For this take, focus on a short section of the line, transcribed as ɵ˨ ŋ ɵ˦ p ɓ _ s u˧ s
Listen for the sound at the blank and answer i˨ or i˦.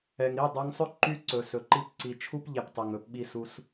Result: i˦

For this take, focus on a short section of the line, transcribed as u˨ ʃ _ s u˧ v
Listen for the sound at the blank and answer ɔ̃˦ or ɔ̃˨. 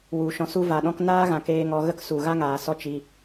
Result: ɔ̃˨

